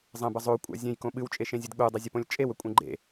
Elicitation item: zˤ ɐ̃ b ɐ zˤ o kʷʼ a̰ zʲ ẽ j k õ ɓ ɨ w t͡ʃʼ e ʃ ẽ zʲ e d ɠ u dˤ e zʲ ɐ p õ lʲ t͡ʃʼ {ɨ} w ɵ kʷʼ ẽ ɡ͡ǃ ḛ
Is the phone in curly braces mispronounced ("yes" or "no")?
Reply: yes